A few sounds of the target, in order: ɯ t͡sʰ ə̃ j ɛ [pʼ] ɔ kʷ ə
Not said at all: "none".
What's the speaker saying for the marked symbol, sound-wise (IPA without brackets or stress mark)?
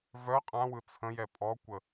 pʼ